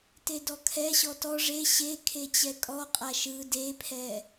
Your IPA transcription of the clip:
t e d ɔ kʰ ɛ ɕ ɔ t ɔ ʐ e ɕ e kʰ e t͡ɕ ɛ kʼ ɔ qʼ a ʃ ɯ d e pʰ ɛ

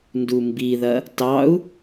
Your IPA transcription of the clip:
n d u m b i ð ɐ | t ɑ u̯

